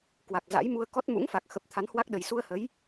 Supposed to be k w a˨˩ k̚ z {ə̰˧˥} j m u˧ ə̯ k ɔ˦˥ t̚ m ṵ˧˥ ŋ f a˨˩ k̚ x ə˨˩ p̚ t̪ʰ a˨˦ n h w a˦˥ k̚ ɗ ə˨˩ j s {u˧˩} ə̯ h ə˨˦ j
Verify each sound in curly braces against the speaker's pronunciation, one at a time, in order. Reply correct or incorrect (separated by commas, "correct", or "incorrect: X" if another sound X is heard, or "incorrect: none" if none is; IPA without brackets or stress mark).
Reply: incorrect: a̰˧˥, incorrect: u˧